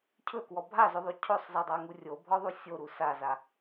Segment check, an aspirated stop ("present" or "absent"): present